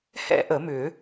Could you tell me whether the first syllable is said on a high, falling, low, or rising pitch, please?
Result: high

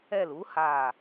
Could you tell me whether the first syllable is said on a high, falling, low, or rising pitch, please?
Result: falling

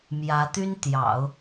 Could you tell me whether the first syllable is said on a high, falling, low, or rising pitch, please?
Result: rising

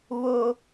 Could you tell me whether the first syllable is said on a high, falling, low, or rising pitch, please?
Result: high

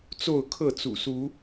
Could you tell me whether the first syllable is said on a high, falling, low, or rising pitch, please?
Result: falling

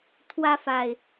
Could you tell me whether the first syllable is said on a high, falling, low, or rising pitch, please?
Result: high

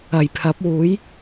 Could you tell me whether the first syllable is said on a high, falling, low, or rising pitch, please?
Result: low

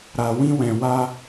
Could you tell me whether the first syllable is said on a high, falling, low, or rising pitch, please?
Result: low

